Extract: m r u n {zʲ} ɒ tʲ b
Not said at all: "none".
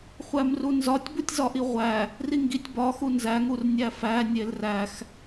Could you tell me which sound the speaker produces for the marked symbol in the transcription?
z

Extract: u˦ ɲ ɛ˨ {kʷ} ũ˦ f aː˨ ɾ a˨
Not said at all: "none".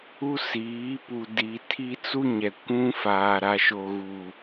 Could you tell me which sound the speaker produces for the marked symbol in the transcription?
kʷ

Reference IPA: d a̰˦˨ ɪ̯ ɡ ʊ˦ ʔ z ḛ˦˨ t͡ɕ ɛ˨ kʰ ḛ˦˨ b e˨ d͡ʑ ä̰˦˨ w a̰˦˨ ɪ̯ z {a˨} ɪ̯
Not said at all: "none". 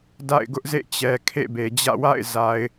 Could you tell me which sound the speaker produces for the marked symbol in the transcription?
a˨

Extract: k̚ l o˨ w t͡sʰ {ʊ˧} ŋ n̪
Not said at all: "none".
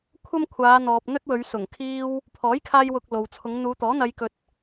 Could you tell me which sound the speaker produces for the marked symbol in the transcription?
ʊ˨˧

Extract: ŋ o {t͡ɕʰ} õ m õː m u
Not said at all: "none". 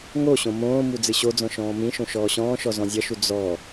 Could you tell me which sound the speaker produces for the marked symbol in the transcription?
ɕ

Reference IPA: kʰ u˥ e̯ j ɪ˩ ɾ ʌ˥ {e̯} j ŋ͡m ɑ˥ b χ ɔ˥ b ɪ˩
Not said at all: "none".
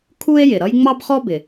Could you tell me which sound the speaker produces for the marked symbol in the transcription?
none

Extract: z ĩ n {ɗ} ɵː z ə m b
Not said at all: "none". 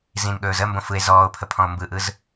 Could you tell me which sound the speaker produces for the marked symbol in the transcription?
ɠ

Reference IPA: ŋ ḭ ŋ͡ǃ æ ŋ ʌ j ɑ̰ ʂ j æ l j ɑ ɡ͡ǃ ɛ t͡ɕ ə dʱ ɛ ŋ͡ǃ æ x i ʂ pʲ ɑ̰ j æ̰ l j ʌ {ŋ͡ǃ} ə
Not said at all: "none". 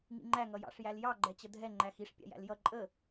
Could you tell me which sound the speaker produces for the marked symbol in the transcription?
ǃʼ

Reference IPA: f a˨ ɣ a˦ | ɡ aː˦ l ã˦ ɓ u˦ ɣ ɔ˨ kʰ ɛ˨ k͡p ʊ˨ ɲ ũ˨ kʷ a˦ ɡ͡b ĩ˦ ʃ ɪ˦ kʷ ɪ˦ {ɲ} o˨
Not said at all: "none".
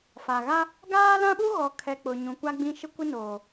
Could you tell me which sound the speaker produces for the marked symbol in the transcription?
n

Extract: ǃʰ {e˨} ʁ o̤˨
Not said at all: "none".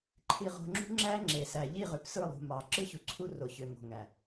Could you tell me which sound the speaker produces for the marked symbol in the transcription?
i˨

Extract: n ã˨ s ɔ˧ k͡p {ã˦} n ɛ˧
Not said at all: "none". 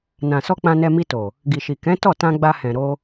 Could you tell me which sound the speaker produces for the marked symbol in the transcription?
ã˧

